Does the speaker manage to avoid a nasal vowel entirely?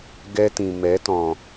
no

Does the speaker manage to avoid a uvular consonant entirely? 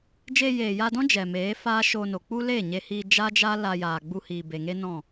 yes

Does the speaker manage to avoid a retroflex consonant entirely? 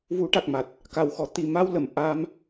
no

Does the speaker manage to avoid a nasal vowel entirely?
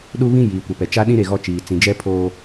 no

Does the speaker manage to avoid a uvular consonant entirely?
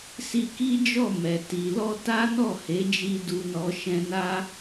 yes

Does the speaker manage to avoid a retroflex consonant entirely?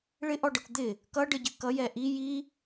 no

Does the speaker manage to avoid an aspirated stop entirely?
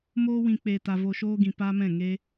yes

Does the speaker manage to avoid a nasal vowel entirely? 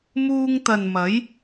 yes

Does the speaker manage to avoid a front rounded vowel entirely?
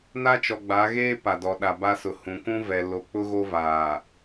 yes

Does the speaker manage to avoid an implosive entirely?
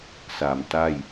yes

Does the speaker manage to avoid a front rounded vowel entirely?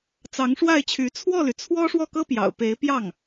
no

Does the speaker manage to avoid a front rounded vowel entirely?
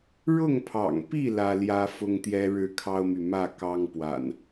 no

